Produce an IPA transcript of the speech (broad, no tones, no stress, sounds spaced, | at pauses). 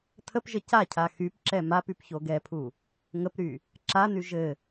tʰ ə p ʒ ə c a cʰ a x y p ǁ ɛ m a p y p ç o ɡ ɛ pʰ u | ŋ ə p ɾ y | ǁ a n y ʒ ɘ